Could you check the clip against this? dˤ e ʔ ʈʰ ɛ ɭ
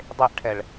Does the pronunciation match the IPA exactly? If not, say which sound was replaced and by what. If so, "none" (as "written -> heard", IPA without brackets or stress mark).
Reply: none